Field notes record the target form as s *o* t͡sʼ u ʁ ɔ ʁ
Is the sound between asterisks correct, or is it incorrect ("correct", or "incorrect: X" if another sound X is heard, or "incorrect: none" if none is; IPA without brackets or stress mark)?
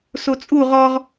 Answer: correct